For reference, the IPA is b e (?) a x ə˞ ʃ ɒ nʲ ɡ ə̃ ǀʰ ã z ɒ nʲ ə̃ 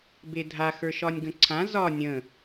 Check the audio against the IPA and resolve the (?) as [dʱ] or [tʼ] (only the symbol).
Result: dʱ